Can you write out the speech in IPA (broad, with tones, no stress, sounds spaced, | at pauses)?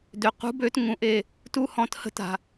d ø˩ q ṳ˨˥ b ø˨˥ t ŋ ũ˩˧ ʔ e˧˩ | t u˦ h ɔ̃˩˧ t h ə̤˦ t a̤˩